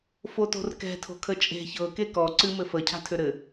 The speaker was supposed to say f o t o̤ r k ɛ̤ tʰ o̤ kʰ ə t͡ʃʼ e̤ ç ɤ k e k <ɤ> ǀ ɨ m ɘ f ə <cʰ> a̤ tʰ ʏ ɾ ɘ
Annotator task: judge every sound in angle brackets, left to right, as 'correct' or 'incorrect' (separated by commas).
incorrect, correct